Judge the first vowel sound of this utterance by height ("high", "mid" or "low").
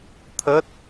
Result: mid